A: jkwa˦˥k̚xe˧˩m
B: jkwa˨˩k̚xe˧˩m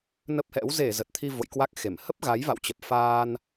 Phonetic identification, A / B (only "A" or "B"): A